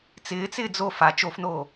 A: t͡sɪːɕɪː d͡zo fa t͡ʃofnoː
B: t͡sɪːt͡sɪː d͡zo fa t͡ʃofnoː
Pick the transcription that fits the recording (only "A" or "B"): B